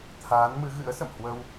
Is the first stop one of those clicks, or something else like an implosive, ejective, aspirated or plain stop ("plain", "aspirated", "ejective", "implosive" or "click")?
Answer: aspirated